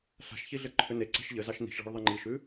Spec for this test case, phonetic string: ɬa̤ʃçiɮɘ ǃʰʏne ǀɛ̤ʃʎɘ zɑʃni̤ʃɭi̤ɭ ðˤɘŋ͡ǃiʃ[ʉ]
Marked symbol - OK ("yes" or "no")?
yes